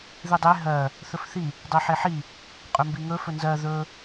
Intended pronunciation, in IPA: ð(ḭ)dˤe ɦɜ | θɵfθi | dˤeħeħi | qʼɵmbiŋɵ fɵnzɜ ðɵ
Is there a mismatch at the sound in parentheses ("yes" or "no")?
yes